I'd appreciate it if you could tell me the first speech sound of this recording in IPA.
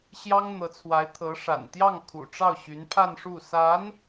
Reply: ɕ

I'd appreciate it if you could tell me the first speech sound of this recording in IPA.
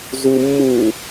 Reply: z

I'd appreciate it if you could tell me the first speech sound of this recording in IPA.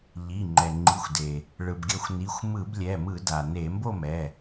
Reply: ʎ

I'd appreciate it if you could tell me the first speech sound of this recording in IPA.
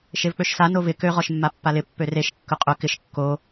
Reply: ʃ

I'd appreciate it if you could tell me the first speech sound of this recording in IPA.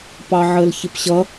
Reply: p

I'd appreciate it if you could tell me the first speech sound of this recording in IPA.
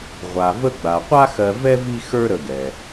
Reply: ʁʷ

